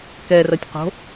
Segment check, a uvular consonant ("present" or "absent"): present